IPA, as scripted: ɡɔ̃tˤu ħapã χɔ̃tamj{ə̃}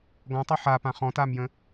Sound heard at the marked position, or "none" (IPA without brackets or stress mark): ə̃